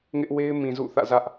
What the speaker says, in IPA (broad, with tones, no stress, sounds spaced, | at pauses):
ŋ ɪ˦ ʔ w e˦ ɪ̯ m ĩ˨ z ṵ˦˨ θ ä̰˦˨ z ä˦ ʔ